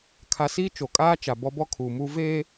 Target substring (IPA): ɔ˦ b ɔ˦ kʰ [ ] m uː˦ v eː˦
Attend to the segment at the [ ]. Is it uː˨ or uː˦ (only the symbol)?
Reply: uː˨